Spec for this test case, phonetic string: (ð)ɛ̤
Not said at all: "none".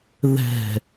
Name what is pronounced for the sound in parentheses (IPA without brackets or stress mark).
ð